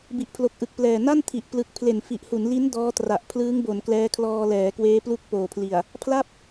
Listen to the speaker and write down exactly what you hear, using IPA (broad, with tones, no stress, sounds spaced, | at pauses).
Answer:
b i˨˩ ʔ pʰ l o˨˩ k̚ ʔ ɯ˨˩ k̚ p l ɛː˨˩ n a˥˩ n tʰ i˨˩ ʔ p l ɯ˨˩ k̚ pʰ l e˨˩ n f i˨˩ ʔ h u˩˦ n l i˦˥ n d ɔː˦˥ t r a˨˩ ʔ pʰ l ɯː˦˥ ŋ b o˩˦ n k l ɛː˦˥ kʰ l ɔː˧ l ɛː˩˦ k w eː˦˥ p l u˦˥ k̚ p oː˨˩ pʰ l i˨˩ a̯ | pʰ l a˥˩ p̚